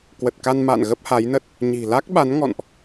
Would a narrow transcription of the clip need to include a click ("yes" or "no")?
no